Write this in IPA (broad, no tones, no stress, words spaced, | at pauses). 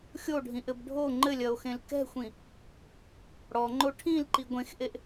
xʲoɖʱĩʔɘb ɖʱo ŋ͡ǃɘlʲɐo̯xẽl kɛ̤xʷĩ | ɽɔŋ͡ǃo ʈʰĩlǃi ɡʷẽxʔeʔ